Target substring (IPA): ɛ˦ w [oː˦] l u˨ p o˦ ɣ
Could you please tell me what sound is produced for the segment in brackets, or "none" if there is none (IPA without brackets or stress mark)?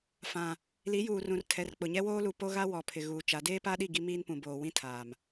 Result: oː˦